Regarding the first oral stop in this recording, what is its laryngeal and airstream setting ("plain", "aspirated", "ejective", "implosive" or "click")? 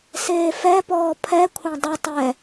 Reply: plain